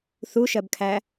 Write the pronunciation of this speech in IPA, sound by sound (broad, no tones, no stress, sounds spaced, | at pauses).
θ u ʃ ɜ b kʰ æ